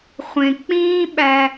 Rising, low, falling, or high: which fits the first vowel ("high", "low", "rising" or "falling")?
low